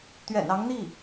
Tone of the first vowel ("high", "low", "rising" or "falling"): low